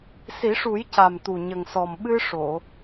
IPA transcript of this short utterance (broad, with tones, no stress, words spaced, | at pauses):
si˨˩˦ʂu˨˩˦jca˨˩mt̪u˨˩ ɲə˨˩ŋsɔ˨˩m ɓɨ˧ʂo˨˩˨